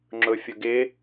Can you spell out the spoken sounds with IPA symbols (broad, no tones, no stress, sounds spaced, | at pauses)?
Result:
ŋ͡ǁ ʊ fʲ ʊ ɡ ɪ